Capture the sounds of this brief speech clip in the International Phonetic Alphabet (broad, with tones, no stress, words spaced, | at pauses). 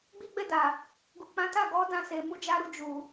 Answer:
ɡ͡bi˦ɡ͡bɛ˦˨da˨ | ɡu˨k͡pã˨˦ ta˦˨ɡɔ˨˦ dã˧se˨ mu˧d͡ʒa˧ɾu˧ d͡ʒu˨